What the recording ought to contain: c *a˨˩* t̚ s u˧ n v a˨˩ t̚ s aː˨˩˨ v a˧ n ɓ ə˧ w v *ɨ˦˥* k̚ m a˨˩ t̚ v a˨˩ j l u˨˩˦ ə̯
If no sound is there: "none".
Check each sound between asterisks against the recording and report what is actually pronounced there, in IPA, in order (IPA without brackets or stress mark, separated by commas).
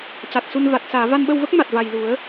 a˨˩, ə˦˥